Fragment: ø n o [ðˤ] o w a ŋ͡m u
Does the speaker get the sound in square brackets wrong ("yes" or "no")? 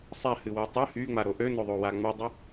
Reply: no